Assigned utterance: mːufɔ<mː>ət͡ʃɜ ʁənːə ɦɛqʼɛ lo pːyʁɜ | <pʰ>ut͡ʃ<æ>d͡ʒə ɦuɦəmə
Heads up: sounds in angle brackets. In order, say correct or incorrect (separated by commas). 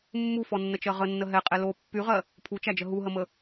incorrect, correct, correct